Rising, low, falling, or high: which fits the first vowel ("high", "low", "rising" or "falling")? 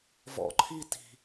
low